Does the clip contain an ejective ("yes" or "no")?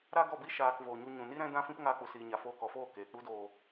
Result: no